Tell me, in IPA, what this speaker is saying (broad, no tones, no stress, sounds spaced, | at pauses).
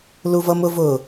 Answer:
l u v ʌ m ʊ v ʊ